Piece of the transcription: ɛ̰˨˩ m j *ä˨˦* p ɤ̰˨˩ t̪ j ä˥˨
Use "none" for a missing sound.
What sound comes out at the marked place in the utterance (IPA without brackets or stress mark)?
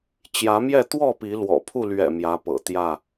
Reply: ä˨˦